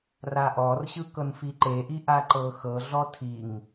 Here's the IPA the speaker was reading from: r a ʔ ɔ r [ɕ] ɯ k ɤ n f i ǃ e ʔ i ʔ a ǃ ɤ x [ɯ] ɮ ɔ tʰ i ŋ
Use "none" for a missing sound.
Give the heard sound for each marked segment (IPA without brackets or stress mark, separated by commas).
ɕ, ɤ